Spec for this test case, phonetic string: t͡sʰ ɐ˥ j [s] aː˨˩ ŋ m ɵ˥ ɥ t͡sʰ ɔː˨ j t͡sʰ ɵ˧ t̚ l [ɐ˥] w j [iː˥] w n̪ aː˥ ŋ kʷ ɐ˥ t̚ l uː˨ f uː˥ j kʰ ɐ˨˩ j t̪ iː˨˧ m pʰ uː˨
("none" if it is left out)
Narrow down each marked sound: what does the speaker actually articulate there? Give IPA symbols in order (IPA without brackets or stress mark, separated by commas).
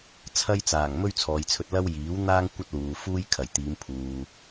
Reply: t͡s, ɐ˥, iː˨˥